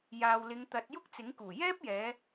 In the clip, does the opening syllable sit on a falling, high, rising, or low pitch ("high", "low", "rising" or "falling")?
low